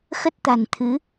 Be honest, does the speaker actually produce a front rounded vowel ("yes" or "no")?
no